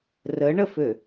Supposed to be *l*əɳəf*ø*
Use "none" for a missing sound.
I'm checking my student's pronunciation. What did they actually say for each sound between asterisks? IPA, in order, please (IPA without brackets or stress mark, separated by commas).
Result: r, ø